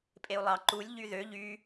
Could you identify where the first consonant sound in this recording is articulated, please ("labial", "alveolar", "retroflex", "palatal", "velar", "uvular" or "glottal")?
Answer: labial